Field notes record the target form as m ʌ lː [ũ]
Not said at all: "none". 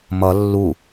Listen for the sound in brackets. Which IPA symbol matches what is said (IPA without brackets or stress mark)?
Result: u